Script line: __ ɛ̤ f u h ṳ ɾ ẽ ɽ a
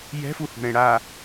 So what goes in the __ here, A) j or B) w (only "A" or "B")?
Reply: A